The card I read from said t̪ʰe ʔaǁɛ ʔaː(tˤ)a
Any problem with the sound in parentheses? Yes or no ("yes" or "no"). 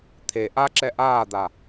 yes